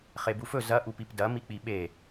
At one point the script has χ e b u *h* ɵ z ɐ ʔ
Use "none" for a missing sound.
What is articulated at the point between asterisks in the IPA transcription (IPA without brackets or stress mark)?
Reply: f